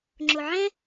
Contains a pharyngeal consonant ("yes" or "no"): yes